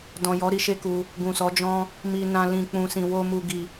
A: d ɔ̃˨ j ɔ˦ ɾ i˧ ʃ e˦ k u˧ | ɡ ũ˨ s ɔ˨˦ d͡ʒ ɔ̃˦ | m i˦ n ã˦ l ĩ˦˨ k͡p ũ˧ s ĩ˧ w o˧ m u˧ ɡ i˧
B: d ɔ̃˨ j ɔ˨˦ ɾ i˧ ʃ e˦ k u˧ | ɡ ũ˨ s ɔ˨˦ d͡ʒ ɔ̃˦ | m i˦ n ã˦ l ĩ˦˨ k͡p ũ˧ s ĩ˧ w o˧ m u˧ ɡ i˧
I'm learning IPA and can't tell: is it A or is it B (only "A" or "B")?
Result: B